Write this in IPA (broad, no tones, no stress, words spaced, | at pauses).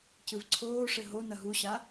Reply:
cɨvǀʰoːʂɘ ɦonɐ ɦuɕa